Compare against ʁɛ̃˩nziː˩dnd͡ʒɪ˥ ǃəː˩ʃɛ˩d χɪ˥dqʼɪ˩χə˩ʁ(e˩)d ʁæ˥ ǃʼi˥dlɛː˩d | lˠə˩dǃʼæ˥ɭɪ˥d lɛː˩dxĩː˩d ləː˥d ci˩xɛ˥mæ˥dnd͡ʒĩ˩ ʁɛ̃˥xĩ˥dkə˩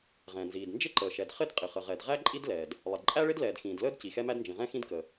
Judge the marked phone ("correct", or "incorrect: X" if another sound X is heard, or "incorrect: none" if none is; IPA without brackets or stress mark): incorrect: ɛ˩